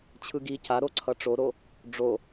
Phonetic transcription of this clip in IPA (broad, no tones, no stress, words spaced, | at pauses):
t͡ɕʰɯɡi ca ɾoǀʰʌʈ͡ʂoɾo | ɖ͡ʐo